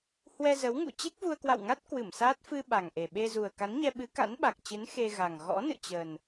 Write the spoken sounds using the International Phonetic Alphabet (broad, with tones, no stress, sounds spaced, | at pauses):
h w ɛ˧ z ə˨˦ w ŋ ṵ˧˨ t͡ɕ e˦˥ k̚ v u˧ ə̯ k w a̰˧˨ w ŋ a˦˥ t̚ k w ɨ˧˩ m s aː˦˥ t̚ f ɨ˧ ɓ a˨˩ ŋ ʔ e˨˩ ɓ e˧ z u˨˩ ə̯ k a˨˦ n ɲ ɛ˧ ɓ ɨ˨˦ k a̰˧˥ n ɓ a˨˩ k̚ t͡ɕ ɨ˨˦ n x e˧ ɣ a˨˩ ŋ ɣ ɔ̰˧˥ n ɨ̰˧˨ t͡ɕ ə˨˩ n